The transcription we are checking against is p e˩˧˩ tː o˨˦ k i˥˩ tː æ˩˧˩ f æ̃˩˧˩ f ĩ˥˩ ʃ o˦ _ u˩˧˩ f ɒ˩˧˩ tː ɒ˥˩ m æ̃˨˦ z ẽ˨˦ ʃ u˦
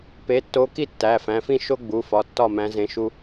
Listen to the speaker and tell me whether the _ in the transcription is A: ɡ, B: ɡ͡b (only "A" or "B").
B